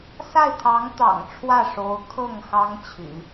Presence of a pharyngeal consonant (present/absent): absent